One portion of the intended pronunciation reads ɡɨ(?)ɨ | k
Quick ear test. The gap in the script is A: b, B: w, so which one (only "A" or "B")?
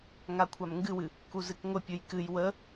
B